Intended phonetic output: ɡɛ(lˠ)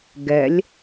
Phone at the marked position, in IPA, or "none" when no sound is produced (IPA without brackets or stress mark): lʲ